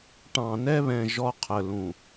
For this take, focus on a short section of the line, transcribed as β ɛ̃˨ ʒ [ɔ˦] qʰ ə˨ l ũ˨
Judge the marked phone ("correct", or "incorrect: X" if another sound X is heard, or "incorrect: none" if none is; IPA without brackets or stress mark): correct